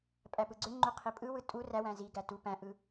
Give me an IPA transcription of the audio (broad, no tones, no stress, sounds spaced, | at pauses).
pʼ æ p ɯ ɡ͡ǀ ø ŋ͡ǃ u qʰ i pʼ ɯ w ɯ tʼ u r æ w æ̃ z i ɡ æ t u p æ̃ ʔ ɯ